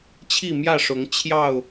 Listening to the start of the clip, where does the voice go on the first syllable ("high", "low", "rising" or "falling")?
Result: falling